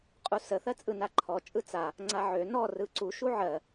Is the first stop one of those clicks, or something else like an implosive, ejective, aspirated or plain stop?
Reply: ejective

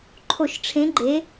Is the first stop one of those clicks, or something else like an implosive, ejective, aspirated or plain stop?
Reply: click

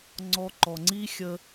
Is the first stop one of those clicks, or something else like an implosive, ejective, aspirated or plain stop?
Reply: click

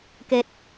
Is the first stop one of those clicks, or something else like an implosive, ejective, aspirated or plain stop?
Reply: plain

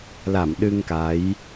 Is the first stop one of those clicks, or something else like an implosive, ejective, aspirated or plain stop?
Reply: implosive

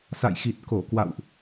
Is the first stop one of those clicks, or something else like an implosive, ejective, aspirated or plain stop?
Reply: plain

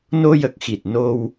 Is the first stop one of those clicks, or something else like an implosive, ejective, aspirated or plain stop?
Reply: plain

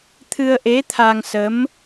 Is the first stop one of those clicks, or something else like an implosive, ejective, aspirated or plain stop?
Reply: aspirated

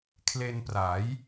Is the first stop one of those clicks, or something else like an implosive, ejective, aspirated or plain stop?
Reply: aspirated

